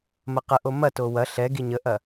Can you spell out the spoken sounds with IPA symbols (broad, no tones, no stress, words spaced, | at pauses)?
mɐqəʔo mɐto wɐ ɬɛɡi ɲəʔɐ